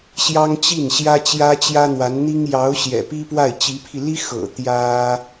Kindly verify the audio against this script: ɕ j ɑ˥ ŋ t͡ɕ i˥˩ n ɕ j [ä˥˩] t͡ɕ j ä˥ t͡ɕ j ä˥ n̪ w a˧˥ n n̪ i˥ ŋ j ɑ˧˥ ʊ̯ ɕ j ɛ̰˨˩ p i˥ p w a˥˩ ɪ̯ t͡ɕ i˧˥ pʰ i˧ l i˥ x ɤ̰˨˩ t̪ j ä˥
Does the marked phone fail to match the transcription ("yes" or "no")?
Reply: yes